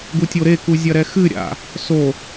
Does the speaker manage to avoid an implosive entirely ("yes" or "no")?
yes